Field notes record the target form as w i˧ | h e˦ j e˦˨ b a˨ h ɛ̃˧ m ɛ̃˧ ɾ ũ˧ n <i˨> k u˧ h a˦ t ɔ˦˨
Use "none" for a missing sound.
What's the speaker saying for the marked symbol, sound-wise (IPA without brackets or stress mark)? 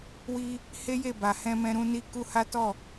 i˧